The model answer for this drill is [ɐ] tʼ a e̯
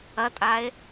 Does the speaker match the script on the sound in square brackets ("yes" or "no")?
yes